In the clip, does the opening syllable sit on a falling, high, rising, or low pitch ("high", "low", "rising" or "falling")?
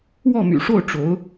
falling